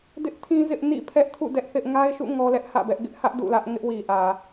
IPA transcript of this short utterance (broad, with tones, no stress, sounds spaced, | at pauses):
d ɪ˦ ʔ tʰ ĩ˦ z ɪ˦ ʔ n ḭ˦˨ pʰ ɛ˦ ʔ tʰ ṵ˦˨ d ɛ˦ ʔ θ ɪ˦ ʔ ŋ a˦ ɪ̯ ʃ ṵ˦˨ ŋ ɔ˦ l ɛ˦ ʔ h ä̰˦˨ b ɛ˦ ʔ ɡ ɪ˦ ʔ h ä˦ ʔ d ṵ˦˨ l ä˦ ʔ ŋ ɪ˦ ʔ w i˨ ʔ ä˨